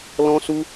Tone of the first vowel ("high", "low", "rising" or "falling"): high